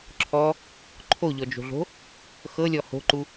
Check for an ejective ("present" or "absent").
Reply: absent